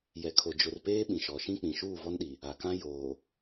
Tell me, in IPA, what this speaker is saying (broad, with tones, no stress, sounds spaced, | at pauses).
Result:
j ɛ˨ kʰ o˨ d͡ʒ ʊ˨ r p eː˦ ɓ ĩ˨ ʃ ɔ˨ ʃ ĩ˦ k͡p ĩ˨ ʃ uː˦˨ v ɔ˦ n ɗ i˨ | a˨ k ã˦ j oː˨